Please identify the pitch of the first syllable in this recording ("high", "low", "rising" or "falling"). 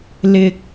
low